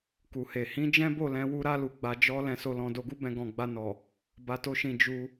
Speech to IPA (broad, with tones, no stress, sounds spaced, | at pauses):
k u˨ h e˨ h ĩ˨˦ d͡ʒ ɛ̃˦ b o˦˨ l ɛ̃˧ w u˦ ɾ a˦ l u˧ ɡ͡b a˧ d͡ʒ ɔ˦ l ɛ̃˧ s o˧ l ɔ̃˧ d o˧ ɡ u˦ b ɛ̃˧ ɡ ɔ̃˨ ɡ͡b a˧ n ɔ˨ | b a˧ t o˦ ʃ ĩ˧ d͡ʒ u˧